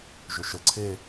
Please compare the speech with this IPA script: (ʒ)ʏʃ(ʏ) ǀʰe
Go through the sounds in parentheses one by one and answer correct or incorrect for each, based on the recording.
correct, incorrect: ə

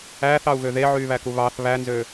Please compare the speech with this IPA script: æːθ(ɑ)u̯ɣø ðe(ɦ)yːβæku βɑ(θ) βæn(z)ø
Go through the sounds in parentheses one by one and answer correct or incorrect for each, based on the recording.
correct, incorrect: ʕ, correct, correct

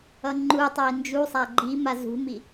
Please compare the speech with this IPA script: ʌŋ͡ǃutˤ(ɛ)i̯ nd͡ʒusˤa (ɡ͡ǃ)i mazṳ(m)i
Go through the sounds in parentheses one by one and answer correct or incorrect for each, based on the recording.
correct, correct, correct

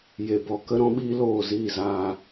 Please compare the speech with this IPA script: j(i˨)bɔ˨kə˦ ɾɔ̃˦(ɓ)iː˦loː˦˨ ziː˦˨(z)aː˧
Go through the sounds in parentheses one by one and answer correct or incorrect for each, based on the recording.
incorrect: e˨, correct, correct

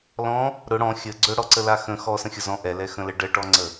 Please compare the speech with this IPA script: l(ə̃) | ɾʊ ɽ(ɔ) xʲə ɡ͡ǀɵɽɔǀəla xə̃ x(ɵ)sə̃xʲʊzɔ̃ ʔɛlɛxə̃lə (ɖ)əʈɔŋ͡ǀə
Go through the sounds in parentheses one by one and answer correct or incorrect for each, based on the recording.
incorrect: ɔ̃, incorrect: ɔ̃, incorrect: ɔ, correct

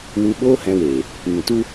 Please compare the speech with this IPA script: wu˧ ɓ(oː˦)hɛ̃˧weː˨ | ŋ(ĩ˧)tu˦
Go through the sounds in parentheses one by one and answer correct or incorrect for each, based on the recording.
correct, incorrect: ĩ˨

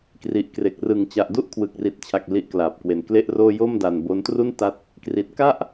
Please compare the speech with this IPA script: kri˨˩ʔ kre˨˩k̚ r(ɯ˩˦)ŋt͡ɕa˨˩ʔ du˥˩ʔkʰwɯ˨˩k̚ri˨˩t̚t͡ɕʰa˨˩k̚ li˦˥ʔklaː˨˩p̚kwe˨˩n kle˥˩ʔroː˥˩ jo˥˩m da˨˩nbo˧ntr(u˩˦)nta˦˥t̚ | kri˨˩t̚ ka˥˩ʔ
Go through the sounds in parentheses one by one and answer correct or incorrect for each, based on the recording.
correct, incorrect: u˥˩

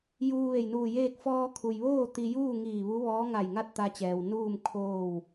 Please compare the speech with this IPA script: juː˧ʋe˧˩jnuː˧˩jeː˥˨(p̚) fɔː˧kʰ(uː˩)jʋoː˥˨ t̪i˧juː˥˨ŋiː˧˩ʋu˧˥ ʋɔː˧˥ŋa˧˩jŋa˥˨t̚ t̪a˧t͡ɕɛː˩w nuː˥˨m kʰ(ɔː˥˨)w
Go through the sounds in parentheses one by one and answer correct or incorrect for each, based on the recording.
incorrect: k̚, incorrect: u˩, incorrect: oː˥˨

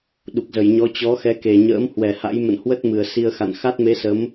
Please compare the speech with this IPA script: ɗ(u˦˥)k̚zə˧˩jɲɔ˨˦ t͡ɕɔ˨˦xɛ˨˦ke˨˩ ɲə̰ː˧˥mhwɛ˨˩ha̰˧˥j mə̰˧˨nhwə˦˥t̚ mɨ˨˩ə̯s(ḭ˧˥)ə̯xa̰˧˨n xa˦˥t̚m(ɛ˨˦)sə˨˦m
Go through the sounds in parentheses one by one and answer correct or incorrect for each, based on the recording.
incorrect: u˨˩, incorrect: i˧, incorrect: e˨˦

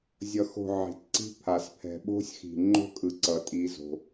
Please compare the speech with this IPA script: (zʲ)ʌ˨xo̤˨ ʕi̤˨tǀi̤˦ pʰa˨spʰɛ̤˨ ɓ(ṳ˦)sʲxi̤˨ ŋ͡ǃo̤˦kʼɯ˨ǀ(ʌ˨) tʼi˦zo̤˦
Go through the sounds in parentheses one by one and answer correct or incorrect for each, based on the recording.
correct, incorrect: o̤˦, correct

